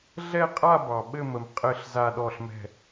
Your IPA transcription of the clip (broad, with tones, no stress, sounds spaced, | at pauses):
ɮ ɛ˥˧ qʼ a˥˧ b ɑ˩ ɓ ɘ˥˧ m ə˩ m qʼ ɘ˥˩ ɬ z a˥˧ ɗ ɔ˥˩ ɬ m ɛ̤˥˩